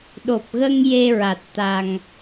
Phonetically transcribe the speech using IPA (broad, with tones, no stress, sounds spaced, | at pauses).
ɗ o˨˩ p̚ ɣ ə˧ ŋ j e˧ ɹ a˨˩ t̚ t̪ a˨˩ ŋ